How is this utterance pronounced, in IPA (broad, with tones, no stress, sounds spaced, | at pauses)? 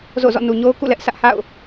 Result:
z o̰˦˨ z ɔ̰˦˨ n u˨ ɲ o˦ ʊ̯ k ṵ˦˨ l ɛ˦ ʔ sʰ ä˦ ʔ h a̰˦˨ ʊ̯